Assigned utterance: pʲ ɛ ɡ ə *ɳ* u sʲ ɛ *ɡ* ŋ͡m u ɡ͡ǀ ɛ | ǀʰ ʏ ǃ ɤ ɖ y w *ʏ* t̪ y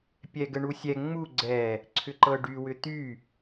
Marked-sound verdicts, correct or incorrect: correct, incorrect, correct

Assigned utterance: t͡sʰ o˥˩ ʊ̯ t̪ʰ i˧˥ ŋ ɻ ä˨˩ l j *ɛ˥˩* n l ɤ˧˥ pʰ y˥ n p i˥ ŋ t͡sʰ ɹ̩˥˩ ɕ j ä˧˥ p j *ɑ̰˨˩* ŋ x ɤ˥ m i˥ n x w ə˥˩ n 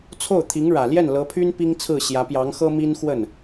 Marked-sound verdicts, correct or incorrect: correct, incorrect

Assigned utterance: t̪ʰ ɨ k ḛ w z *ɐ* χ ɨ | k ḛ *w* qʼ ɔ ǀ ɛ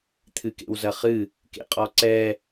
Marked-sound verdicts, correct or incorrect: correct, incorrect

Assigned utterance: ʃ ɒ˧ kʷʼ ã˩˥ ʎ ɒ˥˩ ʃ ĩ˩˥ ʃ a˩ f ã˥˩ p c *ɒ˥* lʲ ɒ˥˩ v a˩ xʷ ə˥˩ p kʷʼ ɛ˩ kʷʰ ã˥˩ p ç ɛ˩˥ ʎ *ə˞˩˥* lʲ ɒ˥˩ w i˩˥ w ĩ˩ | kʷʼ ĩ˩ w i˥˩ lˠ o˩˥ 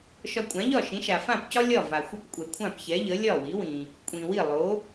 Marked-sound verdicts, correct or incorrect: correct, incorrect

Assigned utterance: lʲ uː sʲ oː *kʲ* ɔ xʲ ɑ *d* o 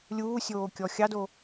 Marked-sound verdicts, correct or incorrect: correct, correct

